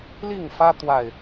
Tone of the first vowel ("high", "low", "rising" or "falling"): falling